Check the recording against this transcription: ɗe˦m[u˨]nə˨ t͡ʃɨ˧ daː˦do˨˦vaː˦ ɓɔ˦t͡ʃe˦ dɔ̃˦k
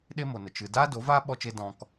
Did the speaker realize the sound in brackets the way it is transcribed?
no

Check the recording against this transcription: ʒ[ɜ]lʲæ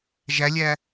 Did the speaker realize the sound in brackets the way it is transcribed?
no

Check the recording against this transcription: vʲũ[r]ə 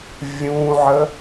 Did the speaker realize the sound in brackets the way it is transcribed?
no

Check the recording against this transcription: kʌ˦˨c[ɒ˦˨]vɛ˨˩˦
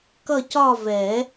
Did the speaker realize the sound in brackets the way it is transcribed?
yes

